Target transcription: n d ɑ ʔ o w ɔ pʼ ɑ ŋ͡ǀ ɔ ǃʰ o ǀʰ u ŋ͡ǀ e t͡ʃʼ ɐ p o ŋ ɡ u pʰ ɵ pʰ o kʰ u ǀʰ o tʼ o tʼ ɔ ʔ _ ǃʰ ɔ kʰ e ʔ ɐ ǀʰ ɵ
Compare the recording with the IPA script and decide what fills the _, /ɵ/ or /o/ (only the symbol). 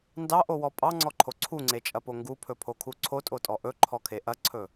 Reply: ɵ